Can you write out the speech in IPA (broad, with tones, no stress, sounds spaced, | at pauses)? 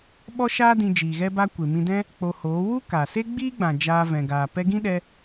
ɓ ɔ˦ ʃ aː˦ d ĩ˧ d͡ʒ iː˨ ɣ ɛ˧ b a˧ kʷ e˨ m ĩ˧ d ɛ̃˦ | k͡p o˧ h oː˨˦ w u˦ k a˨ s e˦ ɡ͡b iː˦ ɡ͡b ã˨ d͡ʒ aː˧ v ɛ̃˨ ɡ aː˨ p ɛ˧ ɡ ĩ˦ ɗ ɛ˧